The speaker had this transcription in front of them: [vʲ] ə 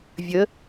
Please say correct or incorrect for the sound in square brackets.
correct